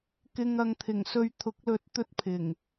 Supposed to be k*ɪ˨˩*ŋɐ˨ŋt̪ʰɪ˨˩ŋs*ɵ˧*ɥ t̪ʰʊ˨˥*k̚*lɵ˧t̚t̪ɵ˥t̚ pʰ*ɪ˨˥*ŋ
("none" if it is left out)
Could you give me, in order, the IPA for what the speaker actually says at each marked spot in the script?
ɪ˨, ɵ˧, k̚, ɪ˨˩

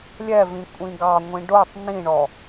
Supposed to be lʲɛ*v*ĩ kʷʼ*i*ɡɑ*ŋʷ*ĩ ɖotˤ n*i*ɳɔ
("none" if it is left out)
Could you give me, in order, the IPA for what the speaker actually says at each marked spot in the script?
v, ĩ, ŋʷ, ĩ

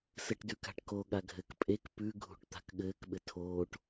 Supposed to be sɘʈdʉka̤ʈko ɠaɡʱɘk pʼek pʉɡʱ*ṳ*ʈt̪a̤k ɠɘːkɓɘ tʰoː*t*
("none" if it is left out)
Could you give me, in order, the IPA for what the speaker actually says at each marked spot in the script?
ṳ, ʈ

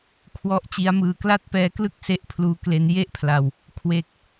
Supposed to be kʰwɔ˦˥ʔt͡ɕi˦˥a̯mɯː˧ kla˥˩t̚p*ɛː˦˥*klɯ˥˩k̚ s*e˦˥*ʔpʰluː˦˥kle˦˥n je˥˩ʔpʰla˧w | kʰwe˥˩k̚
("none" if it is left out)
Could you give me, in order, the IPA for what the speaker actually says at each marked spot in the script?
ɛː˦˥, e˦˥

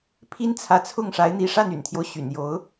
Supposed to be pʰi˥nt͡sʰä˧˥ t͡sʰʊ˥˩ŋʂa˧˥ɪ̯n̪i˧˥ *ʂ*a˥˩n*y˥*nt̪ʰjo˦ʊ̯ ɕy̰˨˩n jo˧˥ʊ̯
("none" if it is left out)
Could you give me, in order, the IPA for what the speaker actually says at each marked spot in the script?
ʂ, y̰˨˩

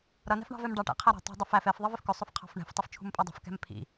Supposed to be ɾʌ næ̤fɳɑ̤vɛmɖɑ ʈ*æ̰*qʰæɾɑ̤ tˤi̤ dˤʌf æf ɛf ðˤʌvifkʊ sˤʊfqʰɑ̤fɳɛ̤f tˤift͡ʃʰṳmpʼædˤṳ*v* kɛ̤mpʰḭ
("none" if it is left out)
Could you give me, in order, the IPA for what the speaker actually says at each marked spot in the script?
æ̰, f

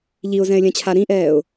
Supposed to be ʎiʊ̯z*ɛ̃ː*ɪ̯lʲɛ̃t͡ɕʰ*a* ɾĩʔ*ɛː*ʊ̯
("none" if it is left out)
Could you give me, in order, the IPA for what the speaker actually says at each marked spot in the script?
ɛ̃, a, ɛː

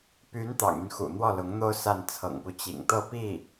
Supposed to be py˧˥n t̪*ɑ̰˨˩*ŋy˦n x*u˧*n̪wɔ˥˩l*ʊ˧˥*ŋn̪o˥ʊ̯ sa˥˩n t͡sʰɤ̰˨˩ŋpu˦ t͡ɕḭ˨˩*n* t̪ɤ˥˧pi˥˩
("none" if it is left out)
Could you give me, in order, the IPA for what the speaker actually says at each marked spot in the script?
ɑ̰˨˩, ṵ˨˩, ʊ˧˥, ŋ

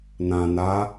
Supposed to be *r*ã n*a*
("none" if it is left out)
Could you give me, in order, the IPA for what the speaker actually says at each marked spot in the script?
n, a

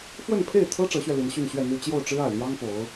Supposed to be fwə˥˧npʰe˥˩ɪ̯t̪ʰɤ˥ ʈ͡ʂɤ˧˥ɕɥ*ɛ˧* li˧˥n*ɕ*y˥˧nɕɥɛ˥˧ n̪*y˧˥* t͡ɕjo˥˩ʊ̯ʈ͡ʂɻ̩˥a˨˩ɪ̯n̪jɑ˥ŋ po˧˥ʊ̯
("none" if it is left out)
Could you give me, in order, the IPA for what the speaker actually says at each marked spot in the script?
ɛ˧, ɕ, y˥˧

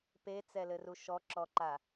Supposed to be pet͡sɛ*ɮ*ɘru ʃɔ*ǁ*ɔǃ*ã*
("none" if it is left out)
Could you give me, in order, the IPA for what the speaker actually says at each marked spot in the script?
l, ǁ, a

